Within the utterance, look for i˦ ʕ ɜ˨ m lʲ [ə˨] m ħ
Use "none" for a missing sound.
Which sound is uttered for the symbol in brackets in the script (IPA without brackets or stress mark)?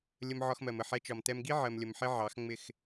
ə˨